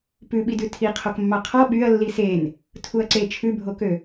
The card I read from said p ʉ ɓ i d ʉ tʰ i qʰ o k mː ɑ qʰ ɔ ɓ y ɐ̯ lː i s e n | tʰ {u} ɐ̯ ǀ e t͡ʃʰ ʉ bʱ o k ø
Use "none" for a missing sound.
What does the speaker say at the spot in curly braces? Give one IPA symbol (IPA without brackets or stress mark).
u